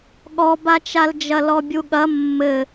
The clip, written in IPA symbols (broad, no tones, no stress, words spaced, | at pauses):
ɠɔbat͡ʃald͡ʒɐ lɔbʲuɠɐ mːɘ